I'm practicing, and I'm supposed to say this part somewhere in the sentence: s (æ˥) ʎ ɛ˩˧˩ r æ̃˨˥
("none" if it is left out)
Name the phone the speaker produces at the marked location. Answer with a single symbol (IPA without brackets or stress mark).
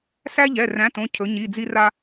æ˥